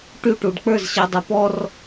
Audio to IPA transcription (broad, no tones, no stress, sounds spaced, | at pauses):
ʈ y ʈ u ɖ k͡p ə˞ z ɕ ɤ dˤ ə˞ p ɔ r